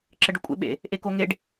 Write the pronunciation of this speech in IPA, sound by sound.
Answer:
ǁ ə ɖ ʊ kʷʼ ḛ ɓ ḛ | ʔ e k o ŋ e ɖ

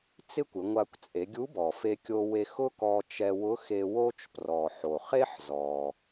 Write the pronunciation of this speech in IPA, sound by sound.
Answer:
t͡s ɪ˥ kʷ ɪ˩˧ ŋʷ a˧ kʷ t͡sʼ e˩˧ ɡʲ u˧˥ b ɔ˩ f e˧ kʲ o˧ w e˧ x ʊ˥ k ɔ˧ t͡ʃ ɛ˧ w ʊ˧˥ x e˧ w o˥ t͡ʃ p r ɔ˩ ħ o˩ χ e˥ ħ z ɔ˩

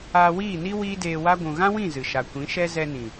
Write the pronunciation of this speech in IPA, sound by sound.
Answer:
aː˧ w iː˦˨ n i˦ w iː˦ d eː˧ w a˦ ɡʷ ũ˨ ɣ ã˦ w ĩ˦˨ z ɨ˨ ʃ a˨ kʷ ĩ˨˦ ʃ ɛ˦ z ɛ˧ n ĩ˨

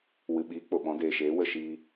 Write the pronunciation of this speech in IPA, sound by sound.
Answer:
w ɨ˨ ɓ iː˨˦ k͡p o˨ ɓ ɔ̃˨˦ d eː˨ ʃ eː˨˦ w ə˦˨ ʃ iː˧

